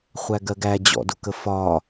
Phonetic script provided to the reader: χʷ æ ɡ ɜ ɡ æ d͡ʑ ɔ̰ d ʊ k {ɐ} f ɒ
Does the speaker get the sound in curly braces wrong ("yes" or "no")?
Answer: yes